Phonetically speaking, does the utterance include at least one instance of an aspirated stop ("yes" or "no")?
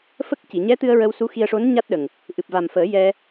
no